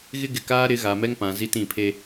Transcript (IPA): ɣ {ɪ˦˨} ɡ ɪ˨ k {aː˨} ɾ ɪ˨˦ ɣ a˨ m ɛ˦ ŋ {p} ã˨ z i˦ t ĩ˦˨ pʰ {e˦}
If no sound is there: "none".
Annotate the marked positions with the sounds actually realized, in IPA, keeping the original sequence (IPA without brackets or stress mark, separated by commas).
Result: ɪ˦, aː˦, p, e˦